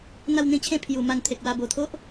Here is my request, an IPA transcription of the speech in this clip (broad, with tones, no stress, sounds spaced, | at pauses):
n̪ a˥˧ w n̪ ĩ˦ t͡ɕʰ ẽ˥˧ pʰ j u˨˩ m a˧ n t̪ʰ e˨ k̚ w a˧ b o˨˩ t̪ʰ o˦ ʔ